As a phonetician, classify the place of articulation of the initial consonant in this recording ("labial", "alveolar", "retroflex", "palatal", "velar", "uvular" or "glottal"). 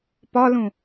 labial